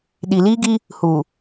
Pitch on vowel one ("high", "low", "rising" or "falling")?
low